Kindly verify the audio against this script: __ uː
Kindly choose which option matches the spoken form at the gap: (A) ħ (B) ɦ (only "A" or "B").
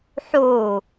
A